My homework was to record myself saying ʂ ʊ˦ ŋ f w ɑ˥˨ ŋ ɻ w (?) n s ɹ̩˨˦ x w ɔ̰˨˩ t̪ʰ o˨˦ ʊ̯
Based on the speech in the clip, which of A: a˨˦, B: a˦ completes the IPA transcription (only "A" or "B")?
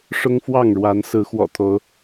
A